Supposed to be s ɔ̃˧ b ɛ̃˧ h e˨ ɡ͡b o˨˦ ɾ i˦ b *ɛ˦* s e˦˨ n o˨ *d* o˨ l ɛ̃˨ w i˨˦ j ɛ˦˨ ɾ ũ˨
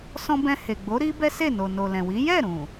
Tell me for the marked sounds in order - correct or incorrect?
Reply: correct, incorrect

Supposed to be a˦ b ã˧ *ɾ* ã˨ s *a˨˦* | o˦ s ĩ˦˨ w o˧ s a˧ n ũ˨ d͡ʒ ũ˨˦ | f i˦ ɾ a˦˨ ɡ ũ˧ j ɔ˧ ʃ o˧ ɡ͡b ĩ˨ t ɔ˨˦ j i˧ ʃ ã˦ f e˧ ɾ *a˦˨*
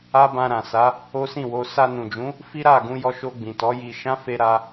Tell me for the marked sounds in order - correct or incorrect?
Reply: correct, correct, incorrect

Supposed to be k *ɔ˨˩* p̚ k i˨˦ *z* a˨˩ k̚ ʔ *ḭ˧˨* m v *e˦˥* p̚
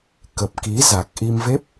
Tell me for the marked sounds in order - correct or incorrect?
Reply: incorrect, correct, incorrect, correct

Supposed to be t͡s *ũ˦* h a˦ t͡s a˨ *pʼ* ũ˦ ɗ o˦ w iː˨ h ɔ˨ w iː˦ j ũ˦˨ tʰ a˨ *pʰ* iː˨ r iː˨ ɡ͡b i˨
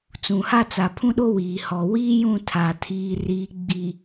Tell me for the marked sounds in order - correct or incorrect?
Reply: incorrect, incorrect, incorrect

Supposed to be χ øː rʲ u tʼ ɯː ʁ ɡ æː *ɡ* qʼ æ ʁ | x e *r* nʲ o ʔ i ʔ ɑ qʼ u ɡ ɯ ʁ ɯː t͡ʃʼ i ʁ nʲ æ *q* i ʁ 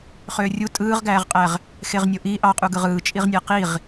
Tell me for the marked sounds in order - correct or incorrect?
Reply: incorrect, incorrect, correct

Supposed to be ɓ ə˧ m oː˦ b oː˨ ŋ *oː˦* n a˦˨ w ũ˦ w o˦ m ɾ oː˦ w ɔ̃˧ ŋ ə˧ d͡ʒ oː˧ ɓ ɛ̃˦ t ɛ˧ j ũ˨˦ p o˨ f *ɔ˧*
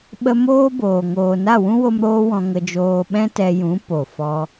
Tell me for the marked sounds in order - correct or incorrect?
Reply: incorrect, correct

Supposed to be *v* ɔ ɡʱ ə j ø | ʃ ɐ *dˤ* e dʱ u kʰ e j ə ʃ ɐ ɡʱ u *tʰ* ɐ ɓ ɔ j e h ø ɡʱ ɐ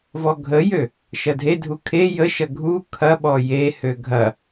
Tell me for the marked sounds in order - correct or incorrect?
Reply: correct, incorrect, incorrect

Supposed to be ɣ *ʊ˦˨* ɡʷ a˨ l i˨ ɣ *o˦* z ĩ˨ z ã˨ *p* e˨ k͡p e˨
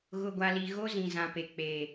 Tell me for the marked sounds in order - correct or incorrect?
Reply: incorrect, correct, correct

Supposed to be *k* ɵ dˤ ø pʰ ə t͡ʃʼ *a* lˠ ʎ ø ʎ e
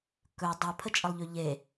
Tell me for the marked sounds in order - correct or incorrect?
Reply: correct, incorrect

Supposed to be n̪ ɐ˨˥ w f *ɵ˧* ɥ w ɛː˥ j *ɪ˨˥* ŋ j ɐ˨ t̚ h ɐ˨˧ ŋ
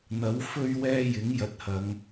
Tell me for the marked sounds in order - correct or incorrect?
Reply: incorrect, correct

